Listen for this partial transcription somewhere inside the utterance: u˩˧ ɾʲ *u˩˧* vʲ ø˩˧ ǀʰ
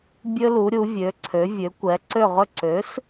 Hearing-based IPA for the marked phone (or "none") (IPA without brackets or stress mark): u˩˧